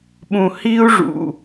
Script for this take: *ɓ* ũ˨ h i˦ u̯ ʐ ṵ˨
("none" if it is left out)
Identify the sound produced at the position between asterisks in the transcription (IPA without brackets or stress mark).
ɓ